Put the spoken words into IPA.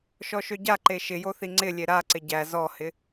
ʃ ɔ ʃ ø ɟ a ǃ e ʃ ɪ j o θ i ŋ͡ǀ ɪ lʲ e ɾ a ǀ ɪ ɟ æ z ɔ h ɪ

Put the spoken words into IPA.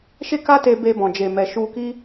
ʃ e˦ k a˦ t e˧ b e˧ b ɔ̃˨ d͡ʒ e˨ m ɛ˨ ʃ u˧ k i˦

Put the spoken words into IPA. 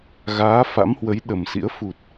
ɣ aː˨˦ f a̰˧˥ m h w ə˨˦ j ɗ ə˨˩ m s ḭ˧˥ ə̯ f u˨˩ t̚

